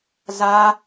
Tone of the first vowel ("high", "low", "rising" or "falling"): high